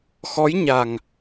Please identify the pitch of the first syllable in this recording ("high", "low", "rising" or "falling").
rising